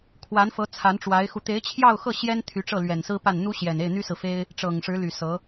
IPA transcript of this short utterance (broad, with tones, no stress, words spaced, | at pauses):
kʰwa˧˥nfɤ˧˥ t͡sʰa˧˥nʈ͡ʂwa˧˥ɪ̯xu˧ t̪e˧˥ɪ̯t͡ɕʰjɑ˥˧ʊ̯xɤ˥˩ ɕjɛ˥n t̪ʰy˧˥ ʈ͡ʂɤ˥˩lɥɛ˨˩nsɹ̩˥pa˥˩n n̪u˥ɕjɛ˨˩ne˥˩ɪ̯ n̪y˥sɹ̩˨fe˥ɪ̯ | ʈ͡ʂɤ˨˩ŋʂɻ̩˧˥ly˨˩ sɤ˧˥